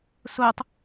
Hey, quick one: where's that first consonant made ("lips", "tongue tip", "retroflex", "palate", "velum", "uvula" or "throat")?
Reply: tongue tip